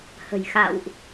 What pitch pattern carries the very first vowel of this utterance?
low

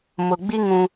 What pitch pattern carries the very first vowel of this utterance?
low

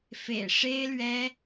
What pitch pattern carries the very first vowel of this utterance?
low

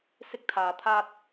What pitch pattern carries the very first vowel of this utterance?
high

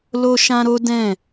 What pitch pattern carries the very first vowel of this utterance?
high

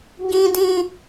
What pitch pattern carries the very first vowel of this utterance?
low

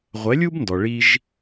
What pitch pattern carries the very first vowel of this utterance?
rising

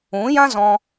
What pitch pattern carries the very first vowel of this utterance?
rising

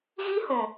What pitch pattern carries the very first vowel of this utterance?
high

